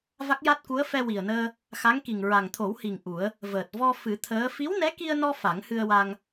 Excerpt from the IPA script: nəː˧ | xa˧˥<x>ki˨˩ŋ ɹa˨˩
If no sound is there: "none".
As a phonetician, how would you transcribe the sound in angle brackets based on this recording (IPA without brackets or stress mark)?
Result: ŋ